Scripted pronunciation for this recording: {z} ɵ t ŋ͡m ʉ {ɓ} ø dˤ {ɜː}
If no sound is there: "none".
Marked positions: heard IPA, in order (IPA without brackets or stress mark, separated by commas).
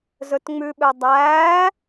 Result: z, ɓ, æː